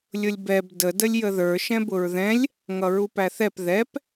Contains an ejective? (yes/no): no